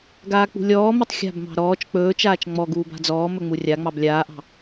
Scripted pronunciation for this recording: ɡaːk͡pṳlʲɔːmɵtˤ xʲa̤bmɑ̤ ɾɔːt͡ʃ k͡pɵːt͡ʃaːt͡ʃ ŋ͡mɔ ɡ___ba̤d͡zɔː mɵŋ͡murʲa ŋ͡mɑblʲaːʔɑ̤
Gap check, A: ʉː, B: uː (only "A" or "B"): B